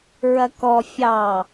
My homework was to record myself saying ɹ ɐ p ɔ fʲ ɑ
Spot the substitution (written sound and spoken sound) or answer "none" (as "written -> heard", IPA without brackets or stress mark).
p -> k